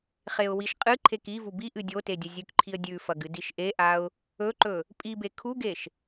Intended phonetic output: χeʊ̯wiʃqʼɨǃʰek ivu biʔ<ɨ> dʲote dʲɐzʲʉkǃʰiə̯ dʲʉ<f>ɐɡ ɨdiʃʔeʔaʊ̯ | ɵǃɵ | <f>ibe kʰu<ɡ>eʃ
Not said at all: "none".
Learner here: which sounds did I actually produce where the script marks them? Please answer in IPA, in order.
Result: ɨ, f, pʼ, ɡ

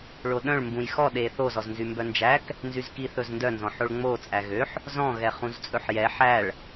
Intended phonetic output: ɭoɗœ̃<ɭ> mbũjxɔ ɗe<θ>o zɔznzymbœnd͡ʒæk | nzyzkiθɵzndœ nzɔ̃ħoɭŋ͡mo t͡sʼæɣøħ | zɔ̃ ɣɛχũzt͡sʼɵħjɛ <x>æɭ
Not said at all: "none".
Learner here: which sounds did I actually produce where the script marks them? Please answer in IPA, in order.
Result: ɭ, θ, ħ

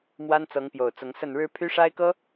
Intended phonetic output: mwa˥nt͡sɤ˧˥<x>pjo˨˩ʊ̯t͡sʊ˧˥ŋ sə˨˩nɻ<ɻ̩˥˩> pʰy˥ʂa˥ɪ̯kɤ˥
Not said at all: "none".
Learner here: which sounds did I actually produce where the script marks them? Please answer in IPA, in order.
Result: ŋ, ɻ̩˧˥

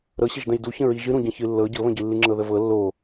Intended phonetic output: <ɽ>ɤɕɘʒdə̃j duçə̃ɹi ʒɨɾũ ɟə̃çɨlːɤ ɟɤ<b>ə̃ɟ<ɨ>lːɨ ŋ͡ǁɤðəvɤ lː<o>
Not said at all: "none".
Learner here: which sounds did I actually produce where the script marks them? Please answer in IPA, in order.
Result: ɾ, β, ɨ, o

